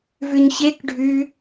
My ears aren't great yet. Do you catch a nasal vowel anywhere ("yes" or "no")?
no